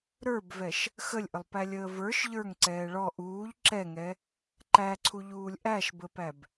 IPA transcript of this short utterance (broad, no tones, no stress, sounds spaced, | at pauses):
ɾ ə˞ b v ɛ ʃ | x ə lʲ ʔ ə lˠ p æ lʲ əː v ə˞ ʃ ʎ ə˞ ŋ ǀ ɛː ɭ ɔ ʔ uː ʎ ǁ ɛ ŋ ɛ | ǃ æ ǀʰ u ʎ uː lʲ ʔ æ ʃ b ə p æ b